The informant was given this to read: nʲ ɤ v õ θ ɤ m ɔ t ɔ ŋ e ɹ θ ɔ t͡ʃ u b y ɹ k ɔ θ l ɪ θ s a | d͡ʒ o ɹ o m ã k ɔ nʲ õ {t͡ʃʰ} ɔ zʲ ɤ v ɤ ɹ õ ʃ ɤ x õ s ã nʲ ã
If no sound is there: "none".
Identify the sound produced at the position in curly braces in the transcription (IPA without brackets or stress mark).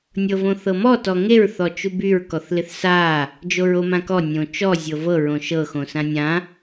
t͡ʃ